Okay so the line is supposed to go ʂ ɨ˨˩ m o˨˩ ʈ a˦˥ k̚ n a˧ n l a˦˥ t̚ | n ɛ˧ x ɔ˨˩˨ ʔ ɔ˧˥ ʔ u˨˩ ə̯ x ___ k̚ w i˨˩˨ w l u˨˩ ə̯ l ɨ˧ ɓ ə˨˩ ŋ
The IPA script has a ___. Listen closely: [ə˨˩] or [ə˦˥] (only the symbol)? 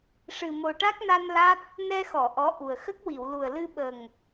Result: ə˦˥